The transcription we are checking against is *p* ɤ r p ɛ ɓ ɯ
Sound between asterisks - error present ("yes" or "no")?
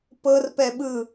no